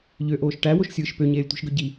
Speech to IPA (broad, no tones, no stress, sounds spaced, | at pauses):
ʎ ø ʔ oː ʃ ʈ æ w o ʃ sʲ ɯː ʃ p ø ɲ eː lʲ tʷ i̤ ʃ ɡ ø ɟ i